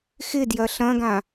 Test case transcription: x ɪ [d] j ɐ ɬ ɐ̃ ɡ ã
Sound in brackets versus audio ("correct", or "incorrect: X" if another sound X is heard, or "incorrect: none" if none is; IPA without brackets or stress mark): correct